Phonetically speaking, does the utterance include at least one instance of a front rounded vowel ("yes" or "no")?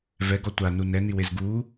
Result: no